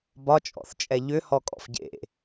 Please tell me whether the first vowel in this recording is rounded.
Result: yes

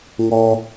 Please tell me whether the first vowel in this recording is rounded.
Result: yes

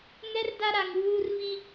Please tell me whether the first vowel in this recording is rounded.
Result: no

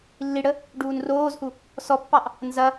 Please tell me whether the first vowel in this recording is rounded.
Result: no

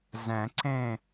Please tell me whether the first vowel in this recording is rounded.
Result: no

